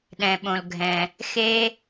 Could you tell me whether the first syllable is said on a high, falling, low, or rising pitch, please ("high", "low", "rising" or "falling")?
low